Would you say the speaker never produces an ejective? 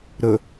yes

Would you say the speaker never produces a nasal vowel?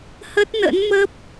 yes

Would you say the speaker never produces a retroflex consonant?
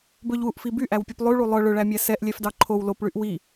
no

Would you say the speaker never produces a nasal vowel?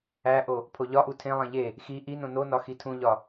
no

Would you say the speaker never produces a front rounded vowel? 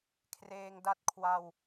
yes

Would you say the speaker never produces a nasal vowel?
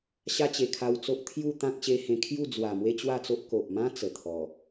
no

